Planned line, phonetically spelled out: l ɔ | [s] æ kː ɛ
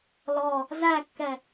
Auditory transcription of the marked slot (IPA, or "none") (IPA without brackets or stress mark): z